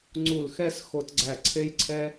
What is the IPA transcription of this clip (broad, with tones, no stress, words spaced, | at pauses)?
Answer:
ŋ͡ǀu˧˩lxɛ˥˧s xo˧tɡ͡ǀæ˧˩ ǀʰe˥jǀʰɛ˥